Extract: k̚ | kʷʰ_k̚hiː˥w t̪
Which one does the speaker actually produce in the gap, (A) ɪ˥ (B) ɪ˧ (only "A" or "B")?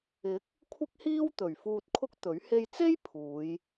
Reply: A